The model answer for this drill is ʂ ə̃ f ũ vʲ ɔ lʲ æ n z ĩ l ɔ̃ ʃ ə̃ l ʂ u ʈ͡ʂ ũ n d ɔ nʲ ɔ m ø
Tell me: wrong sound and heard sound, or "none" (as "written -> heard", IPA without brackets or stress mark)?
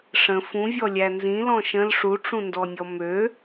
none